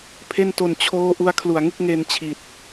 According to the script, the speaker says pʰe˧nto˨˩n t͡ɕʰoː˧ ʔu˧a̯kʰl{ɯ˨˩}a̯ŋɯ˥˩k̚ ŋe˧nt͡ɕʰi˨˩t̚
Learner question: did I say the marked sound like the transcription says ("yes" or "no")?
no